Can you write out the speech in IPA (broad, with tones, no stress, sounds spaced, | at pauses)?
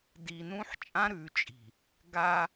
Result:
d i˨ n ũ˦ ħ t͡ʃʼ ã˦ ɾ ʉ˨ t͡ʃʼ i̤˨ | ɡ a˦